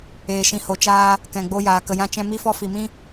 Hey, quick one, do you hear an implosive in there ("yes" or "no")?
no